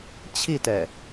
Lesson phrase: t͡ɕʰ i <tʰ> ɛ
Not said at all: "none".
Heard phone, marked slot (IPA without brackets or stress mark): t